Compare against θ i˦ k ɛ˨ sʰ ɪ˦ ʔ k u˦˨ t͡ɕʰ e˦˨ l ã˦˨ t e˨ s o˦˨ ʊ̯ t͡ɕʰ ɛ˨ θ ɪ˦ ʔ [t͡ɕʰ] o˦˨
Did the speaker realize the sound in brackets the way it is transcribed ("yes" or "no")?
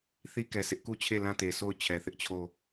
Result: yes